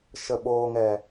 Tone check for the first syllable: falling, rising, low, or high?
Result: low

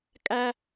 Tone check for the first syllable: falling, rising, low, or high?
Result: high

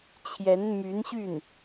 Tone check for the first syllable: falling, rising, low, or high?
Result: rising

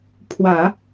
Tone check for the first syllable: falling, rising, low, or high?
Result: low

